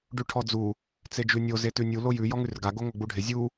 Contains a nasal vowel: no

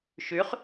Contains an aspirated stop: no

